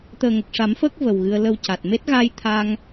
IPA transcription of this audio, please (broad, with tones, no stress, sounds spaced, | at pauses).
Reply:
t̪ əː˨˩ ŋ ə˨˩ k̚ ʂ a˨˩˦ m f əː˦˥ k̚ v ə˨˩ w ɣ ɨ˧ ə̯ l ə˧ w c a˨˩ t̚ m e˦˥ t̚ ɣ a˧ j t̪ʰ a˧ ŋ